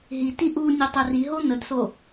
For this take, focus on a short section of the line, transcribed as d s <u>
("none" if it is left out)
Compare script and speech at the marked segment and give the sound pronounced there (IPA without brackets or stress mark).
o